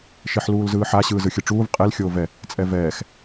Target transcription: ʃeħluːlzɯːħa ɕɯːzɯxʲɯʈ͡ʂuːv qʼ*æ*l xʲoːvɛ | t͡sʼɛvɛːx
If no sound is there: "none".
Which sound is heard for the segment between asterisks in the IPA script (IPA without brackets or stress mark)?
ɛ